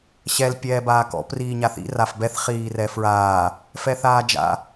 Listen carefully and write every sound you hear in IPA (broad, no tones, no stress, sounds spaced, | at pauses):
ɕ ɛ l pʲ ɛː b aː k ɔ̰ p r iː ɲ a θ ḭ r a f b ɛ θ χ iː r ɛ f ɹ aː | f ɛ θ aː d͡ʒ a̰